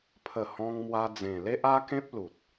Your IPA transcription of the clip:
pʰ ə˨˩ h ɔ̃˧ ŋ m w a˧ d͡z ẽ˨˩ l e˦ ʔ a˦ k ẽ˦ p̚ l u˨ t̚

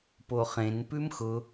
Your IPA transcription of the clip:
p o χ ẽ n p ʉ m x ʊ

